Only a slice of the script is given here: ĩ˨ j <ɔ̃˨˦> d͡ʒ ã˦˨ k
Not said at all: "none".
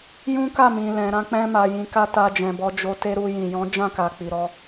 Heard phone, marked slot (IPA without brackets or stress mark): ɔ̃˨˦